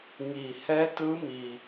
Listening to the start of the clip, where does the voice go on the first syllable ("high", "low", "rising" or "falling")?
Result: low